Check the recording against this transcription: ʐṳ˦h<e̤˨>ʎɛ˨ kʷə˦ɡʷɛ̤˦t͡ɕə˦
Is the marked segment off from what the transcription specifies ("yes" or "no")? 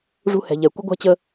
yes